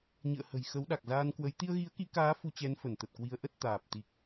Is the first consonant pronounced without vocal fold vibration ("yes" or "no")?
no